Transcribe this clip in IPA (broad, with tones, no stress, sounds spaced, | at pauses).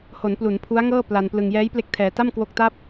h o˩˦ n p l u˩˦ n pʰ u˦˥ a̯ ŋ ɤː˥˩ p l a˧ n p l ɯ˧ ŋ j ɛː˦˥ j p l e˦˥ k̚ tʰ ɛː˧ t a˥˩ m k w o˦˥ k̚ t a˥˩ p̚